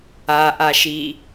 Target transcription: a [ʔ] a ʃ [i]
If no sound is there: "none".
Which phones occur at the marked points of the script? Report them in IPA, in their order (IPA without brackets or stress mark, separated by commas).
ʔ, i